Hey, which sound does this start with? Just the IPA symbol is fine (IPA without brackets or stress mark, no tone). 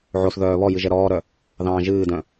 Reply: ʕ